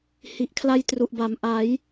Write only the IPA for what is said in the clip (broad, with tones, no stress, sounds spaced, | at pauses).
h i˨˩ ʔ kʰ l a˦˥ j t r u˨˩ ʔ b a˩˦ m ʔ a˩˦ j